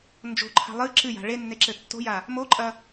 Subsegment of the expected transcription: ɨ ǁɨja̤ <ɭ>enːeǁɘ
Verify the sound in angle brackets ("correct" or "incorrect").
correct